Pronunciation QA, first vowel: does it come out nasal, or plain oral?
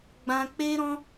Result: nasal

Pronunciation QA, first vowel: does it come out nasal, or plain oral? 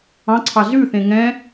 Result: nasal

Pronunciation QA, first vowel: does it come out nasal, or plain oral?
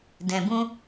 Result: nasal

